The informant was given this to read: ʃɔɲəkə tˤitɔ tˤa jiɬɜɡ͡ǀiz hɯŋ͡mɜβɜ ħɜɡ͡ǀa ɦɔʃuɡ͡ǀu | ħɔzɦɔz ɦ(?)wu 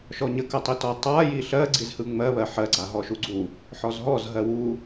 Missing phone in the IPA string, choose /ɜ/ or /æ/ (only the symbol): ɜ